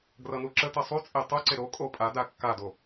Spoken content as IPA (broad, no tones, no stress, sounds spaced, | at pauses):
ɡ r ʌ n u ǁ ə t ʌ sˤ u t͡sʼ e tˤ u ǀ e ɾ o kʼ o pʼ a d a kː a d o